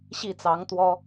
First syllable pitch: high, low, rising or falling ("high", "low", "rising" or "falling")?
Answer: falling